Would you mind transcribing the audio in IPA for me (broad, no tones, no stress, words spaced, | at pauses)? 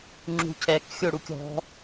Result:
ŋ͡ǁṳcʰɛk xʲoɽukʲɔ̤